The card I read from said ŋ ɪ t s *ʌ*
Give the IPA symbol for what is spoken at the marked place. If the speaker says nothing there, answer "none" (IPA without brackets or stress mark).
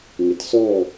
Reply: ɔ